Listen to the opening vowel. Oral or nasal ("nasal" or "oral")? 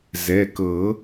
oral